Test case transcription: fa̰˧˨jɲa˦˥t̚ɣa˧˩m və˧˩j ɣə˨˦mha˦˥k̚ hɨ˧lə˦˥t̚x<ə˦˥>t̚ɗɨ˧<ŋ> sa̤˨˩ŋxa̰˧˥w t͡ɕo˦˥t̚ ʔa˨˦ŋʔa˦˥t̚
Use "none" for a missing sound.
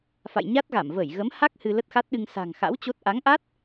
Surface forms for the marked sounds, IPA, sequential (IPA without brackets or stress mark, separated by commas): a˦˥, ŋ